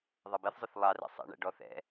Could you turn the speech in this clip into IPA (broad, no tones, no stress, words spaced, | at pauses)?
ðˤʌbɛθzˤʊθ lˠɑrɛ̰ sˤɛ̰ɳæ̰ ɖɔθɛ̰